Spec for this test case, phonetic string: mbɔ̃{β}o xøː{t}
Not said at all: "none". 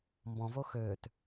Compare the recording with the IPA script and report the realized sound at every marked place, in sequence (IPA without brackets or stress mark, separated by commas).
v, t